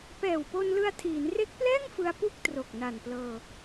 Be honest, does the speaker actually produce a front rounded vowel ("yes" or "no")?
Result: no